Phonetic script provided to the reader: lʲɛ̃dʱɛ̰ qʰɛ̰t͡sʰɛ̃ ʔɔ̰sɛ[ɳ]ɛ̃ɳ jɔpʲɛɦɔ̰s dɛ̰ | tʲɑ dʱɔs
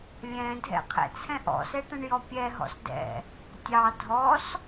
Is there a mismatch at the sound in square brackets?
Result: yes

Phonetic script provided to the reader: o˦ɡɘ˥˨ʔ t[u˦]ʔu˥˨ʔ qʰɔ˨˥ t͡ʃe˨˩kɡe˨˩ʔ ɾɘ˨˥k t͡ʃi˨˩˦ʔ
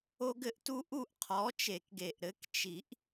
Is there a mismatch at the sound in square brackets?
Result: no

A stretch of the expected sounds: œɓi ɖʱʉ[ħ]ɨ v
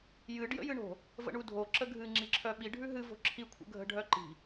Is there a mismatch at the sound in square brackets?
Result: yes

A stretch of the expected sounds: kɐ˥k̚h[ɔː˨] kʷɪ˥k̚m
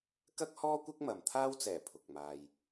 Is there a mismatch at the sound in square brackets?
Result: yes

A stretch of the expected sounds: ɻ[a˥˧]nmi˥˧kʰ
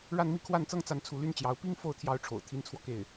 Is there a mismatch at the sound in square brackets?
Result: no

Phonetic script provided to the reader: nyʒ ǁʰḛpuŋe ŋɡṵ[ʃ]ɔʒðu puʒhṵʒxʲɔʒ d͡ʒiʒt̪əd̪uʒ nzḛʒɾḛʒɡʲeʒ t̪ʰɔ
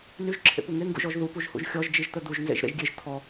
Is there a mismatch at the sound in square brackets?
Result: yes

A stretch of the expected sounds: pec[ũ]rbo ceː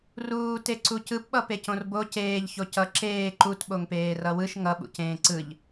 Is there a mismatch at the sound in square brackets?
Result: yes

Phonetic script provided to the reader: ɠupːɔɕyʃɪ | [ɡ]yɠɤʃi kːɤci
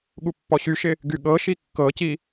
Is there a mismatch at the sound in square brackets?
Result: no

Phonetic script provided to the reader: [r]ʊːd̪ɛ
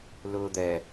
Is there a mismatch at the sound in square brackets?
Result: yes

